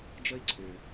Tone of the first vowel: high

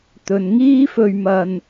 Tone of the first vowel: low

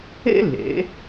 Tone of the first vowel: high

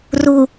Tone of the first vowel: low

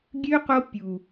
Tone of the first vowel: high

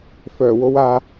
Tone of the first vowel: low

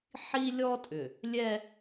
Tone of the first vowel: high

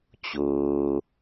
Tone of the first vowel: low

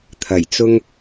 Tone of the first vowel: low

